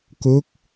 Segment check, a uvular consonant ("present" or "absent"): absent